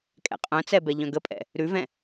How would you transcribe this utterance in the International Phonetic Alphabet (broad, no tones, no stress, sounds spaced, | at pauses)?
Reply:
kʼ ɛ̰ qʼ œ̃ t͡s ɛ b ɛ ʎ œ̃ ɡ ə pʼ ɛ̰ | ɾ ʉ v ɛ̃